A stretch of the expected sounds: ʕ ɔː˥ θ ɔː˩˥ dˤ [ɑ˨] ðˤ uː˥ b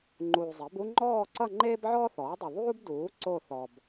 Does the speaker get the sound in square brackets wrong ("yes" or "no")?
yes